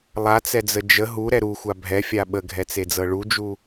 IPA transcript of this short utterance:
lˠ a t͡s ɛ d͡z ə d͡ʒ ə ɦ u ɾ ɛ ɾ u xʷ a bʱ ɛ fʲ a ɓ ə ɡʱ ɛ t͡s e d͡z ɤ ɭ u d͡ʒ u

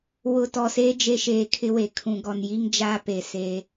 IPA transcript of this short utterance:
w ʊ˨ t ɔ˨ s eː˦ d͡ʒ e˦ ʃ eː˨ kʰ ɪ˦ w e˨ kʰ ũ˨ ɡ ɔ˨ n j i˦ ŋ d͡ʒ aː˦ p e˨ s eː˦

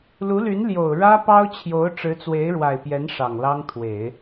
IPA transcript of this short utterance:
l u˧˥ l y˧˥ n l j o˨˩ ʊ̯ ɻ ä˥ p ɑ˥ ʊ̯ t͡ɕʰ j o˧˥ ʊ̯ ʈ͡ʂ ɻ̩˧˥ t͡s w e˧˥ ɪ̯ ɻ w a˨˩ ɪ̯ p j ɛ˧˥ n ʂ ɑ˨˩ ŋ l ɑ˥ ŋ t̪ʰ w e˨˩˦ ɪ̯

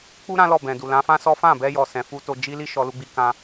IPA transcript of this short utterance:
k͡p u˦ ɾ ã˦ l ɔ˦˨ b ɛ̃˨ d u˨ l ã˨˦ f ã˦ s ɔ˦ f ã˦˨ b ɛ˧ j ɔ˨ s ɛ̃˨ f u˧ t o˧ d͡ʒ i˦ l i˦ ʃ ɔ˧ l u˧ ɡ͡b i˧ k ã˧

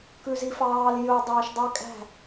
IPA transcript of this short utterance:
k ʉ z i f ɑː l j ɵ dˤ ɛː ʃ dˤ y kʼ æ̤

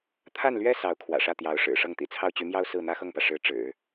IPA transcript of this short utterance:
t̪ʰ a˥˩ n l ɥ ɛ˥ s ɑ˧˥ ʊ̯ kʰ w ä̰˨˩ ʂ ä˥˩ t̪ j ɑ˧˥ ʊ̯ ʂ ɻ̩˨˩ ʂ ɤ˥˩ ŋ t̪ ḭ˨˩ t͡sʰ ɑ˥˩ ʊ̯ t͡ɕ y˧˥ m j ɑ˥ ʊ̯ s ɹ̩˥˩ n̪ ä˥ x ɤ˥˩ ŋ p ä˩ ʂ ɻ̩˧˥ ʈ͡ʂ ɻ̩˨˩˦

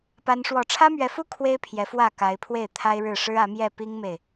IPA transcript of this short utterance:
p a˦ n ʂ w ɔ˥˨ ʈ͡ʂʰ ä˦ m ɥ ɛ˨˦ f u˦ kʰ w e˦ ɪ̯ pʰ j ɛ˨˦ f w ä˥˨ k a˨˦ ɪ̯ pʰ w e˥˨ ɪ̯ t̪ʰ a˦ ɪ̯ ɻ ɻ̩˥˨ ʂ ɻ̩˦ ä˨˦ m j ɛ˥˨ p i˦ ŋ m e˨ ɪ̯

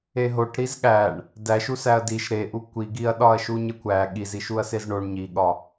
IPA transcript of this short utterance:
e ɦ o ʈ ɾ i z ɠ æ ɳ | d æ ʃ u s æ ɐ̯ d i ʃ ɾ e ʔ u kʷ i ɡ i ɐ̯ ɗ ɒ ɐ̯ ʃ u ɲ e kʷ æ ɠ i z i ʃ u ɐ̯ s e z ɳ o ɳ ɲ i ɠ ɒ

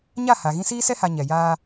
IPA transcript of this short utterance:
ɲ a˦˨ h a˨ ɣ ĩ˦ s iː˦ s ɛ˦ h a˨ ɲ ɛ˨ j aː˦

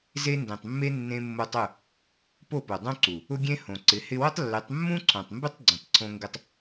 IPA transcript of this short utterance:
z e˧ n d ẽ˨ tˤ mː e˧ nː ẽ˧ mː o˧ tˤ ʊ˦˨ | p o˦˨ p o˨ dˤ õ˦ ǀ u˨ | ʊ˦ ɡʲ ẽ˦ h õ˨ ǀ ɪ˨˦ h ɪ˧ w ʊ˦ tˤ lː ɪ˨˦ tˤ mː ũ˦ ǀʰ õ˨ tˤ m b ɪ˦ tˤ ɡ͡ǀ ũ˨ tˤ ǀʰ õ˧ ŋ ɡ ɪ˦ tˤ

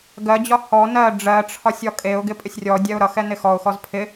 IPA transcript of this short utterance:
ɡ ɜ d͡ʑ ɒ h ɔ n ɜ ɖ͡ʐ ɜ ʈ͡ʂʰ ɒ sʲ ɒ kʼ e ʊ̯ ɡ ɪ pʼ ɪ sʲ rʲ ɔ dʲ ɛ ʊ̯ ɾ ʌ x ɛ n ɪ x ɔ ʊ̯ x ɔ z pʰ ɪ

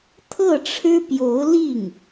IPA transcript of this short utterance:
t̪ʰ ɤ˥˩ ʈ͡ʂʰ ɻ̩˥ p j o˧˥ ʊ̯ l i˥˩ ŋ

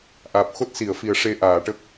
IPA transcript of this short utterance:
ʔ aː˨˩ p̚ x o˦˥ t̚ s i˨˩˨ ə̯ f i˨˩ ə̯ ʂ e˧ ʔ aː˨˩˨ ʈ ə˦˥ k̚

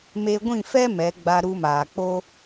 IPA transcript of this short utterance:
m e˧ ɡʷ ĩ˦˨ f ɛ˦ m ɛ˨˦ ɡ͡b a˧ ɾ u˧ m aː˨ k͡p o˦

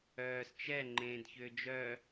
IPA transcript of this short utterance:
œː s t͡ʃ ɛ ŋ͡ǃ ẽː d ç ʏː d͡ʒ œ

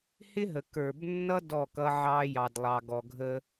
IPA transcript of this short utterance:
h ɪ˦ ɦ ə˨ k ə˞˨ b nː ʌ˦ d ɔ˦˨ k ʌ˦ ʕ ɑ˦ j ɑ˨ d lˠ ɑ˨ ɡ ɔ˨ ɡʱ ə˦

